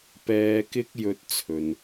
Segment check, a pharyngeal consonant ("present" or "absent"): absent